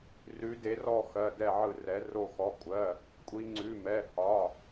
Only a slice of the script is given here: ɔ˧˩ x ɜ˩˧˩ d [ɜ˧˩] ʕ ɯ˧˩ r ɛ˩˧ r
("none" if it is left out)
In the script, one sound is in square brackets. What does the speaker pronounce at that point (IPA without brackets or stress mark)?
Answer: ɛ˧˩